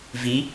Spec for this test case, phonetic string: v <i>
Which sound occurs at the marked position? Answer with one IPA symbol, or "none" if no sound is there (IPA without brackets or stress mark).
i